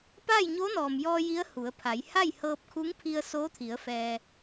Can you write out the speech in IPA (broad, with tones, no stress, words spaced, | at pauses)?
paː˥˨jɲo˧˥nɔː˩mjɔː˧ ji˧˥ə̯hu˩˧ə̯pʰa˩˧j ha˥˨jhɤː˧p̚kʰu˧˥ŋ pʰi˧ə̯soː˧˥t̪ʰi˩˧ə̯ fɛː˧